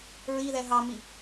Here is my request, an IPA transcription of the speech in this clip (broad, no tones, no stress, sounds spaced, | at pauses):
ɹ i ð ɛ ɦ ɑ m i